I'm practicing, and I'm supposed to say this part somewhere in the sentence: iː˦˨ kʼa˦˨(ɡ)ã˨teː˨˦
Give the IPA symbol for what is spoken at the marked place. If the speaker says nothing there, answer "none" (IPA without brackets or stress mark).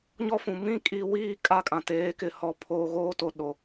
kʼ